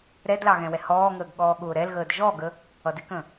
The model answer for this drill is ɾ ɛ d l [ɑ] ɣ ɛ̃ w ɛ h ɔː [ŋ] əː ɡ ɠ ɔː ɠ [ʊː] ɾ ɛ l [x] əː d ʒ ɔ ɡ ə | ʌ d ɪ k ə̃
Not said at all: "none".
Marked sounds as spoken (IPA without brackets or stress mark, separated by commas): ɑ, ŋ, ʊː, ɣ